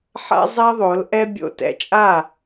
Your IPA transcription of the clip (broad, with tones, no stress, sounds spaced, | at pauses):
ħ a̰˦ zˤ ɛ˦ ðˤ o˨˦ l ʔ ɛ˦ bʲ o̰˧ t ɛ̰˨ t͡ʃʼ a˦˨